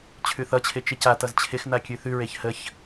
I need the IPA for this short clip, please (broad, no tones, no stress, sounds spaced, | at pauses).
t͡ɕʰ ʉ θ ʌ t͡ɕʰ ɪ t͡ʃ ɪ c a t ʌ z t͡ɕʰ ɪ x n a kʲ ʉ θ ʉ ɹ e ç h ə ç